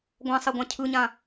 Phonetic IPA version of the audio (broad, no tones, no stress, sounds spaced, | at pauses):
ɡʷ ã sˤ e ɡʷ ã cʰ ɯ ɲ ã